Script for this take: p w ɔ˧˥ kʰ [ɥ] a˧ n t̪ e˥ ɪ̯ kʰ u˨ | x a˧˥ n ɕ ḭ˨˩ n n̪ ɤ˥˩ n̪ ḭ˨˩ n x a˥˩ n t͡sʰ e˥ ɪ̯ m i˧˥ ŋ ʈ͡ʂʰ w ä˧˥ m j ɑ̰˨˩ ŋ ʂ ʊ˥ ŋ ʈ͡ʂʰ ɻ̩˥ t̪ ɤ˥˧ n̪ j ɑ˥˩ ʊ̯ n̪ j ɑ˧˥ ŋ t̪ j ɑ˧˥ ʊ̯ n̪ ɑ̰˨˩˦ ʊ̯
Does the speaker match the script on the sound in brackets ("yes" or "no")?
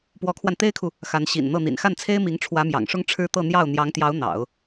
no